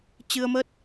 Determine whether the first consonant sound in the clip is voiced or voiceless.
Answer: voiceless